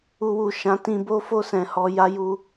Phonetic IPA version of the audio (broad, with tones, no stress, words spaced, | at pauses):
u˧wu˨ ʃã˨˦tĩ˧bo˦ fo˦˨sɛ̃˨hɔ˧ ja˦ju˦